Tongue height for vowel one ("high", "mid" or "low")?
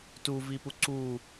high